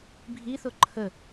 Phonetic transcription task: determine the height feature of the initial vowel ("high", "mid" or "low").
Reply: high